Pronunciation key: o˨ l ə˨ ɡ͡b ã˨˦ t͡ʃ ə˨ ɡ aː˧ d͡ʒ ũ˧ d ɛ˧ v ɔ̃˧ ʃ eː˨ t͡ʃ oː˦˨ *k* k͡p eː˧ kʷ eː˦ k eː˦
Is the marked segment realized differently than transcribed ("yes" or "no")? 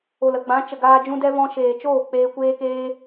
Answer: yes